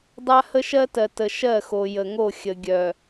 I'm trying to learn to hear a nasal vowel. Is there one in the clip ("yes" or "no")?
no